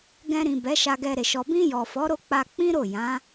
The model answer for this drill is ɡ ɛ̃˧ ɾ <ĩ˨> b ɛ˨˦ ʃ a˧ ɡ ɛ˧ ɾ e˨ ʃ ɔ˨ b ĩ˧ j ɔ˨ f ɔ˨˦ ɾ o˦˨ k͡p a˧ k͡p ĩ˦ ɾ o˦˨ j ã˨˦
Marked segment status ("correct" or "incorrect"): correct